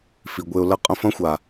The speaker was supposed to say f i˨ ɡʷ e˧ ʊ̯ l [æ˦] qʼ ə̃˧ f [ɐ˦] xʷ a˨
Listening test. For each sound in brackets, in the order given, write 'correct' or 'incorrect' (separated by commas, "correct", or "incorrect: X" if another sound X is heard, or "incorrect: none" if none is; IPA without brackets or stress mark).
incorrect: ɐ˦, incorrect: ɐ̃˦